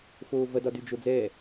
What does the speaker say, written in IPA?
foːvɐ dɒdyd͡ʒod͡zɛː

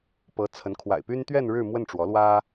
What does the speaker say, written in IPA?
pɤ˧˥t͡sʰə˧˥n kʰwa̰˨˩ɪ̯py˥n t̪ɥɛ˥˧n ɻɻ̩˥˧mwə˥˩nʈ͡ʂwɔ˧˥ lwä˥

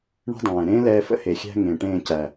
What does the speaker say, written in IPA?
ɳə̤˦dˤɛ̃ː˨ ɾẽː˦lɛː˧fə̰˦he˨ xʲæ̤˧ ŋẽ˨ʈẽː˦˨ cæ˨

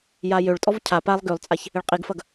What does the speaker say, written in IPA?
jajøɭtʼɔv cʰa palˠ ɡølˠt͡sʼaç | ɪɭqʼiɡfɐɡ

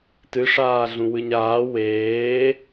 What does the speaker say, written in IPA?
tɨʂaːɮũ wɨɲaː weː

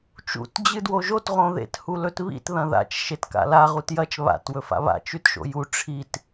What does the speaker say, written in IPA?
t͡ʃṵt d͡ʑɨdwoʒot ʁõðḛt hulɵtβḭt ðɐ̃ða̰t͡ʃ ʃetka̰la ʁutjɐt͡ʃ βa̰t wɵfa̰βa̰ t͡ʃʉtʃo̰ju ʈ͡ʂʰit

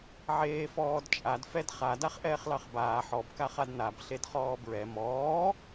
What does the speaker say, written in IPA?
ʕeːfɔːdt͡ʃʼad fɛdχa daχʔɛːχlɑχbaː ħɔb kaχadnab ɬedχɔːbɹɛ mɔː

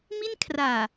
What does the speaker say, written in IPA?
mi˥˩n kʰraː˨˩

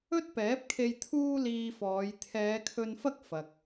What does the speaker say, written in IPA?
ɵ˥t̚pɛː˨˥p̚kʰe˧j t̪ʰuː˥liː˧fɔː˨˧j t̪ʰɛː˨˧kʰɵ˧nfɐ˥k̚ fɐ˨k̚

